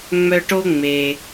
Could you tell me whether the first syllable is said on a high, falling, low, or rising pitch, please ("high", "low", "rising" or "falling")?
high